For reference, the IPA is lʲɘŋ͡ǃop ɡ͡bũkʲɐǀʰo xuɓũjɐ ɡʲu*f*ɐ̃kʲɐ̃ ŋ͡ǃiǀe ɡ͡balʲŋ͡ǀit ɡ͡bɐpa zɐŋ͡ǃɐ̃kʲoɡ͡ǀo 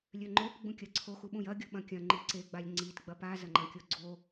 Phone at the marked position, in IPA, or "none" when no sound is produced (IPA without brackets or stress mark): ɓ